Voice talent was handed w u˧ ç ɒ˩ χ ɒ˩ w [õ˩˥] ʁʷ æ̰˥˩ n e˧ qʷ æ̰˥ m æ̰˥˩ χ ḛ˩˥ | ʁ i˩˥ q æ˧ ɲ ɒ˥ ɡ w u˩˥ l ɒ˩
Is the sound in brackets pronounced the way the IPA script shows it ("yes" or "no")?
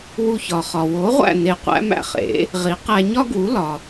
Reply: no